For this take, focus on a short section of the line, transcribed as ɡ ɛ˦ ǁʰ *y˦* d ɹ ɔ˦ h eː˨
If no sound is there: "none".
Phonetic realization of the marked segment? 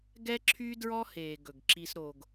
y˦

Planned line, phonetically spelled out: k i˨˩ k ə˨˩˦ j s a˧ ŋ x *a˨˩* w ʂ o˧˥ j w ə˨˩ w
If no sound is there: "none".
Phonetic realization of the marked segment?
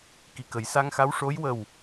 a˧˥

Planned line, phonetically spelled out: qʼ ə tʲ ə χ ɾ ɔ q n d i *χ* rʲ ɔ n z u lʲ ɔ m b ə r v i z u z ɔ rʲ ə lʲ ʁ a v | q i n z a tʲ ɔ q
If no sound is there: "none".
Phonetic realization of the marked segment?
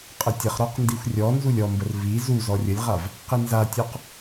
xʷ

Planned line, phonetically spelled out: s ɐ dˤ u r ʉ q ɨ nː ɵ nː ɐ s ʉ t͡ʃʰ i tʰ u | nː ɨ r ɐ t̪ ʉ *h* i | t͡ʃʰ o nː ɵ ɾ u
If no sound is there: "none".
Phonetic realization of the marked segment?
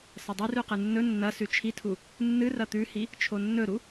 h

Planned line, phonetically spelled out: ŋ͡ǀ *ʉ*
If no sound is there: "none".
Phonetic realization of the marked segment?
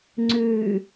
ʉ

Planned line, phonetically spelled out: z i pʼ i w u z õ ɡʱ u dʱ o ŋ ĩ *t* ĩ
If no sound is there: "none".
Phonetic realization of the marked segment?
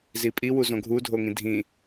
dʱ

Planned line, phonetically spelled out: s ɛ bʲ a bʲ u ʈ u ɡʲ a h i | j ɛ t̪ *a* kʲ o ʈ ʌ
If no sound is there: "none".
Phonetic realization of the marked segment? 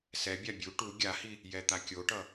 a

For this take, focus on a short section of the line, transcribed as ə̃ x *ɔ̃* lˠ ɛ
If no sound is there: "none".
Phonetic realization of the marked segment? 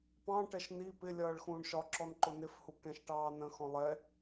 ɔ̃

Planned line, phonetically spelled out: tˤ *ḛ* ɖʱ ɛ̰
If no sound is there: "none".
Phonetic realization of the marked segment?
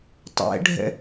ɛ̰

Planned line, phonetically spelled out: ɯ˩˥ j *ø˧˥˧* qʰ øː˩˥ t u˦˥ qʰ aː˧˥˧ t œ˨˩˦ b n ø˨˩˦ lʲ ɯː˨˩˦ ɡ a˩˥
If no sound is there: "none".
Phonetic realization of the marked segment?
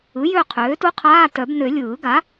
ø˦˨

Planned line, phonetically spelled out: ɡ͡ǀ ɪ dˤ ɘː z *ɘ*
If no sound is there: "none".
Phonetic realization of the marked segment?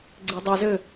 ɘ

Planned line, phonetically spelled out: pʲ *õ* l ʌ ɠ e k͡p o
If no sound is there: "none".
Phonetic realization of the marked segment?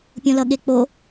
õ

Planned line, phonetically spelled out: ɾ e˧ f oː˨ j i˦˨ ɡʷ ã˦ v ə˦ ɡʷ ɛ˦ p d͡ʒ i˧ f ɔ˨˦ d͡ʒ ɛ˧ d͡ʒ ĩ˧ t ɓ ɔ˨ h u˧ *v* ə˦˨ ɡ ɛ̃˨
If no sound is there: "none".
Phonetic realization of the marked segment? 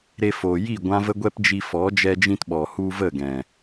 v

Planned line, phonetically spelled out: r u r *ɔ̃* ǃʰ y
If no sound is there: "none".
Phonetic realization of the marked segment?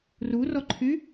ɔ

